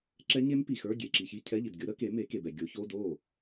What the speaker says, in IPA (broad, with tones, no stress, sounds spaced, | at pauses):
ǁ ɛ˦˥ ɲ e˦˥ m p i˨ x ə˞˧˥˧ ɡʲ e˨ ǁ i˨ ç i˧˥˧ cʰ ɛ˧˥˧ ʎ i˨ d ɡʲ o˨˥ ɾ ə˨˥ k e˨˥ m e˨˥ k e˨ b ɛ˨ ɡʲ o˨˥ ç o˧˥˧ d o˥˩